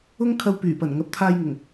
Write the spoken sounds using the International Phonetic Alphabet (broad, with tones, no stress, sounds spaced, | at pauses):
ʊ˥ ŋ kʰ ɐ˧ w p yː˨˩ p ɐ˨˩ n ŋ ɐ˨˥ p̚ t̪ʰ aː˧ j ŋ ʊ˨˩ ŋ